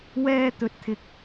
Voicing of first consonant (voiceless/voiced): voiced